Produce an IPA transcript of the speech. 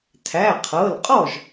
tʰ æ˩˧˩ qʰ ɤ˩˧˩ l qʼ ɔ˥˩ ʒ

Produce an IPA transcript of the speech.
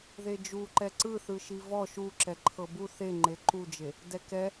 ð e d͡ʒ u ǃ ɛ ǀ ɯ θ ɯ ʃ i v ɔ ʃ u ǁ ɛ ǃʰ ɤ b u θ e ŋ͡ǃ e ǃ u d͡ʒ e | d ɛ k ɛ

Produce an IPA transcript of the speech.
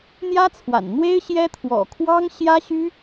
n̪ j ä˥ t͡sʰ w a̰˨˩ n n̪ w e˥ ɪ̯ ɕ j ɛ˥ t̪ʰ w ɔ̰˨˩ kʰ w ɑ˥ ŋ ɕ j ä˥ ɕ y˥

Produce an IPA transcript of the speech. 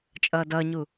t͡ʃʼ ʌː d ʌː ɲ u

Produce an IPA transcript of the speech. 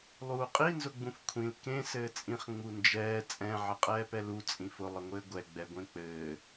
lˠ uː qʼ i n z ʊ ɡ͡b ũ f kʷʰ ĩ l k ẽ s ɘː t͡sʼ ĩ χ ŋ͡m u n d͡ʒ ɛː t͡sʼ ɛ̃ ʕ ɘ qʼ ɛː p ɛ l u t͡sʼ ĩ f ʊ lˠ ə ŋʷ ɘː ɡʷ ɛ ɡ͡b ɛ ɡʷ ẽ k͡p ɘː

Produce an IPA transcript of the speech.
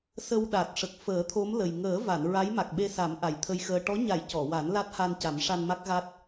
s ə˧ w ɗ a˨˩ t̚ ʂ ə˨˩ k̚ f əː˨˩˦ t̪ʰ o˧˥ m l ə˨˩ j ŋ əː˨˩˦ v a˨˩˨ n ɹ a˧˥ j m a˨˩ k̚ ɓ e˧ s a˨˩˦ m ʔ a˨˩ j t̪ʰ ə˧ j x əː˧ ʈ ɔ˧˥ ɲ a˨˩˦ j c ɔ˨˩˨ w a˨˩˦ n l a˦˥ t̚ h a˧ n c a˨˩˦ m ʂ a˧ n m a˦˥ k̚ ɣ a˦˥ t̚

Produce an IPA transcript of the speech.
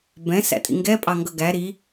b ɛ̃ s æ̰ tʼ ḭ ŋ ɡ ɛ pʼ ɑ ŋ ɡ ʌ ɡ æ ɾ i

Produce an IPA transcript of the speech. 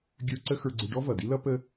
ɡʲ ə˞˧ ǀ ə˥ x ə˞˧ ɡ͡ǀ ɪ˧ ɖ ɔ˥ v ʌ˩ d i˥ l ʌ˥ p ə˥

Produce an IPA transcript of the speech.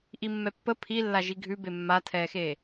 ʔ i mː ɛ pː ə pʰ i lː a ʒ i ɡʱ ʉ b e mː a tʰ ɛː x eː

